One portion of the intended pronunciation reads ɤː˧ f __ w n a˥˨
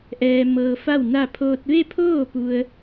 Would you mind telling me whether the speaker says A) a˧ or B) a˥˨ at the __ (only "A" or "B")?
B